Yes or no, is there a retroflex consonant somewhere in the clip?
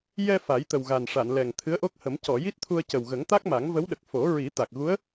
yes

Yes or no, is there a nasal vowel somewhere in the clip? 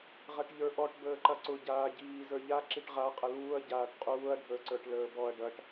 no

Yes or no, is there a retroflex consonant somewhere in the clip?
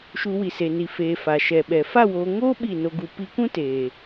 no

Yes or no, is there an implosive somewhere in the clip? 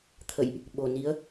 yes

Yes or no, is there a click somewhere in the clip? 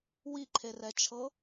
yes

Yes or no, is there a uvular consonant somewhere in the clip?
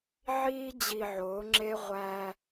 yes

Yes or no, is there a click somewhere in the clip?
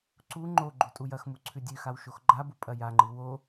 yes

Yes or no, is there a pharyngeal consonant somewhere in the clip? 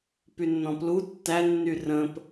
no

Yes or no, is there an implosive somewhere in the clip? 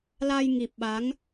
yes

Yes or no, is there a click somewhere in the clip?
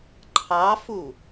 yes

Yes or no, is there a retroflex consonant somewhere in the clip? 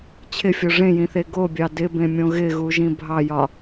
yes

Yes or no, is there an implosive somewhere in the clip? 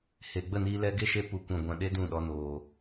yes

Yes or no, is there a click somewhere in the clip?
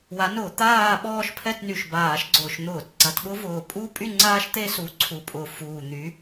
yes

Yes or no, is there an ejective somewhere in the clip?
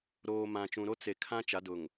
no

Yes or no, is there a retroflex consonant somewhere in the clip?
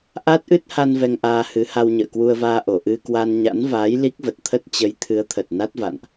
no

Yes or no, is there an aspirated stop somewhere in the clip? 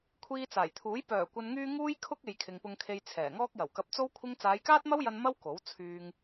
yes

